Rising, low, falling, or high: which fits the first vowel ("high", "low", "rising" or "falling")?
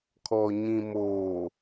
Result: low